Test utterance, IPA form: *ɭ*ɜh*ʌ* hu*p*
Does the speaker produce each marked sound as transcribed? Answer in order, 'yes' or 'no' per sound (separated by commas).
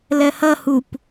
no, yes, yes